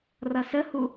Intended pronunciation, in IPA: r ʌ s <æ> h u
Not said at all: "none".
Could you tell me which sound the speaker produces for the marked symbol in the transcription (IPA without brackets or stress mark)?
ə